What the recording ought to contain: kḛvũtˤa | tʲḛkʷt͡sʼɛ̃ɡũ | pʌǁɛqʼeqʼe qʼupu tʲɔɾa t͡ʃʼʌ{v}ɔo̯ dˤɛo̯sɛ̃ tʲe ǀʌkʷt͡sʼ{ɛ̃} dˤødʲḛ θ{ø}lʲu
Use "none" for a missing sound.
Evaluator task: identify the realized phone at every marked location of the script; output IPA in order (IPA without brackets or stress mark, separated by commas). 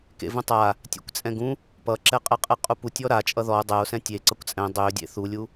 ð, ɛ̃, u